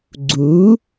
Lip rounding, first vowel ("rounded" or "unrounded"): rounded